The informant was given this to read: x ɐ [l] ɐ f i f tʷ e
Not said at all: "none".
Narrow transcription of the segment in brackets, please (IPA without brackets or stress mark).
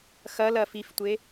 l